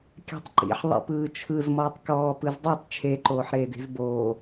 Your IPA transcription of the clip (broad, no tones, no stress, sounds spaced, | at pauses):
kʲ a̤ tˤ ǃ ḭ ħ ðˤ ḭ p ɯː t͡ʃʰ ɯ z m ɔː tˤ k ɔː p ɯ z dˤ e tˤ t͡ʃʰ e ǃ oː ħ ɾ eː d i̤ z b oː